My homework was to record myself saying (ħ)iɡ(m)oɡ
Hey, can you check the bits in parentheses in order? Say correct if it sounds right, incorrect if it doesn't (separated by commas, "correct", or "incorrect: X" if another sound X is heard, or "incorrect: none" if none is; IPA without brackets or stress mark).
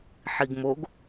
correct, correct